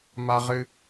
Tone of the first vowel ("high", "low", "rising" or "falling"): high